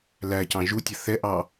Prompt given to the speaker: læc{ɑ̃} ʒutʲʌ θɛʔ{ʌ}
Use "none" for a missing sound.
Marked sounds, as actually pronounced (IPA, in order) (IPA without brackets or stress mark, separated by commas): ɑ̃, ɑ